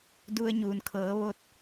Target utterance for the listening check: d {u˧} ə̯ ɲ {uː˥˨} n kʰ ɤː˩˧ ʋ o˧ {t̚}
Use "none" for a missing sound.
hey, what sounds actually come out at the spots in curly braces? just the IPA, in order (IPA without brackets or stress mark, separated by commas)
u˧, uː˩, t̚